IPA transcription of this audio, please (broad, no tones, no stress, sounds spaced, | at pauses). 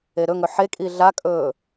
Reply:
e ɾ ɵ ŋ ɵ ħ e kʼ i ɮ a kʼ ɵː